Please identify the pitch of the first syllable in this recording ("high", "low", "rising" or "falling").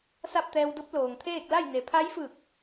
falling